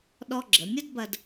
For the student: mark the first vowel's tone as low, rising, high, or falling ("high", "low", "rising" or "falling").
high